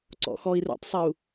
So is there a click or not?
yes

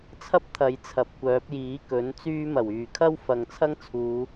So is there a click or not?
no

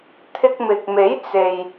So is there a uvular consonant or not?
no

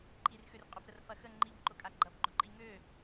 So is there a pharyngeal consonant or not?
no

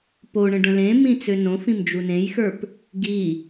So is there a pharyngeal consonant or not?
no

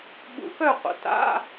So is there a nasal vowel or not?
no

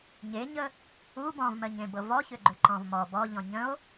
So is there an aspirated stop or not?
no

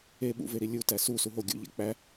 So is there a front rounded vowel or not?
no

